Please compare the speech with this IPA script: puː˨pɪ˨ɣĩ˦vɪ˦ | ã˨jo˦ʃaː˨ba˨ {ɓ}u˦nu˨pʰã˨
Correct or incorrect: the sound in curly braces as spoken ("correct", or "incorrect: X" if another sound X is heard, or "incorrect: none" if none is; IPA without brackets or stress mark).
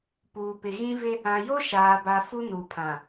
incorrect: f